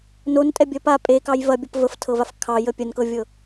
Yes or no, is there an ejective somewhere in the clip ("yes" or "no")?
yes